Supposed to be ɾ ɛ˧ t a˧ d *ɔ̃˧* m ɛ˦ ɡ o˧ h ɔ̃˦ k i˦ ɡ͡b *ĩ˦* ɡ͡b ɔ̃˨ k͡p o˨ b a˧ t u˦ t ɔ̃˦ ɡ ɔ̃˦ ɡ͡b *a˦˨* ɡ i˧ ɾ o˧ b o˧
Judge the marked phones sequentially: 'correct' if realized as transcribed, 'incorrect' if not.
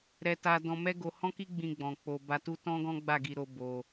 correct, incorrect: ĩ˧, correct

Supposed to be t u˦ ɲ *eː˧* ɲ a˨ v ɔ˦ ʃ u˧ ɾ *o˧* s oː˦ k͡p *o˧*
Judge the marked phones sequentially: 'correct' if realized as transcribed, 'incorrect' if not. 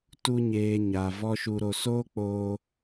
correct, correct, incorrect: oː˧

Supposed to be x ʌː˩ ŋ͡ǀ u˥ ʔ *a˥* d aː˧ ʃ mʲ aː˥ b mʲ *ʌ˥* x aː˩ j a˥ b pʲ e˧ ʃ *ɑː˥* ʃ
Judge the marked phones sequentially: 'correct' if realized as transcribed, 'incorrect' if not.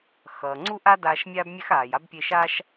correct, incorrect: a˥, incorrect: aː˥

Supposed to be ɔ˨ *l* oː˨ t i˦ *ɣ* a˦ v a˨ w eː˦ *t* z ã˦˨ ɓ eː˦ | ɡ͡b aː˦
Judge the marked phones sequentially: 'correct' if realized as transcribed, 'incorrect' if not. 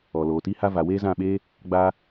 correct, incorrect: h, incorrect: none

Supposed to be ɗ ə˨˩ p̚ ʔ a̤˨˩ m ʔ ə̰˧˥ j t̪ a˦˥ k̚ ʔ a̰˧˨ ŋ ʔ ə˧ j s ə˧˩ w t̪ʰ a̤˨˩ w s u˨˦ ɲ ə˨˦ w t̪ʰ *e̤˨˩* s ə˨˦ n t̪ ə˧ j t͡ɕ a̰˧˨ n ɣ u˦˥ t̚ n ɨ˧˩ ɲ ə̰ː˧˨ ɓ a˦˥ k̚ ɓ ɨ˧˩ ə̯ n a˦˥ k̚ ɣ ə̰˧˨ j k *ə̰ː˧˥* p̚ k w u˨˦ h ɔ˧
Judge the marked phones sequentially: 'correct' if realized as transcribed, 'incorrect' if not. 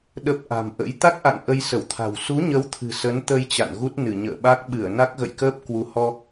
incorrect: ɨ̤˨˩, incorrect: əː˦˥

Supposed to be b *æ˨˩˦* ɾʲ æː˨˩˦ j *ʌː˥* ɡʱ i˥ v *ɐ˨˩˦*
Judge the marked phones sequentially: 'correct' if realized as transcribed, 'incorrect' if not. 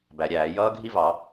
correct, correct, incorrect: ɑ˨˩˦

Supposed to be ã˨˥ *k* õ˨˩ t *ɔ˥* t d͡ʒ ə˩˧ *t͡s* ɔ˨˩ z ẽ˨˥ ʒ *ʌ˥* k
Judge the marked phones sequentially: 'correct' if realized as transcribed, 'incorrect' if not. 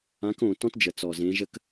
correct, incorrect: ɔ̃˥, correct, incorrect: ə˥

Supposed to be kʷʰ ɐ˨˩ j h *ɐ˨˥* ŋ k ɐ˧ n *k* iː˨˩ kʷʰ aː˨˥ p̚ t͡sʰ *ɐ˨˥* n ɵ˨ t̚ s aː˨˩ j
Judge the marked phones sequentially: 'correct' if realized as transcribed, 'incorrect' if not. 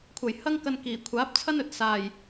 incorrect: ɐ˥, correct, incorrect: ɐ˥

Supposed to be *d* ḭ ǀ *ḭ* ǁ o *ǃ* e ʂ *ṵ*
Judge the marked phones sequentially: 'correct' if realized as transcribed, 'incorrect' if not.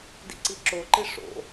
correct, incorrect: i, correct, incorrect: o̰

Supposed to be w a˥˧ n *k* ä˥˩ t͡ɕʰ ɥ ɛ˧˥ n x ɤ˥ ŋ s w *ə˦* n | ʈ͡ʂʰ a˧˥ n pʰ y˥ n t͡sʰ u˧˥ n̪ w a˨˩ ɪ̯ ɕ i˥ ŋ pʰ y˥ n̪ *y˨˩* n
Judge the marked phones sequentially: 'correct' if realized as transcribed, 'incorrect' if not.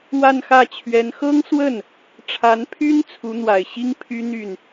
incorrect: x, incorrect: ə˥˩, incorrect: y˥˩

